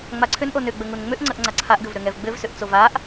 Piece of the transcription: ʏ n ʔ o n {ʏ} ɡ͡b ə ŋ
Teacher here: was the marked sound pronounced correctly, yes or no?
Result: yes